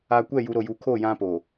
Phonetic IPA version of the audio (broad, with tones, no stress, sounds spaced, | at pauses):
a˨ kʷ ɛ˦˨ j u˨ ɾ o˨ j u˨ kʰ o˦˨ j ã˦ p o˨